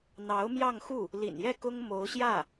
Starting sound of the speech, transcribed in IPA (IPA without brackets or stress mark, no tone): n̪